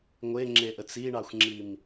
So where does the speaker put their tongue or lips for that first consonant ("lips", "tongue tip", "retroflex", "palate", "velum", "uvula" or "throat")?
velum